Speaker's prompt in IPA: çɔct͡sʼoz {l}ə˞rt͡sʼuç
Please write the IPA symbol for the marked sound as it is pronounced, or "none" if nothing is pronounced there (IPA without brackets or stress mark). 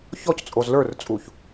l